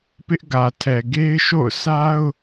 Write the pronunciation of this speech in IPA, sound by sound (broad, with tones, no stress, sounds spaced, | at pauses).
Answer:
p ɪ˦ ʔ ɡ ä˨ tʰ ɛ˨ ɡ e˦ ɪ̯ ʃ o̰˦˨ ʊ̯ sʰ a˦ ʊ̯